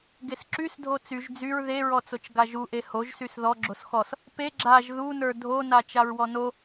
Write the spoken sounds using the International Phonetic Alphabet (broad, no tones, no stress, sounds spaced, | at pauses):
ɡ e s ǁ y s dʱ o t͡s y ʒ d͡z y ɹ ð e ɹ ɔ t͡s o t͡ʃ ɡ a ʒ u ʔ e h o ʒ s y s ð ɔ ɡ͡ǁ o s x ɔ s | p e ɡ͡ǁ a ʒ ð u n ə˞ dʱ o n a t͡ʃ a ɹ w ɔ n o